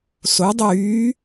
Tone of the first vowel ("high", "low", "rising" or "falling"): rising